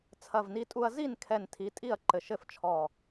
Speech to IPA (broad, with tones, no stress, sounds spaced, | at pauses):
t͡sʰ ɐ˧˩ v n i˧ tʼ u˧ ɐ̯ z i˥˩ n kʰ ɛ˧˩ n tʰ i˩˧˩ tʼ i˥˩ ɐ̯ ǃ ɘ˧˩ ʃ ɘ˥˩ f t͡ʃʰ ɔ˧˩